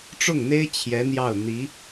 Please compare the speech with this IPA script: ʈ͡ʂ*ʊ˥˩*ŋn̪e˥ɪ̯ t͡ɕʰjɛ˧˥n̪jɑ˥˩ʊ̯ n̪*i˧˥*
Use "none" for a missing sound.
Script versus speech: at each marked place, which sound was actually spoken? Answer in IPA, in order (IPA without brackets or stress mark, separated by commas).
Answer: ʊ˥˩, i˧˥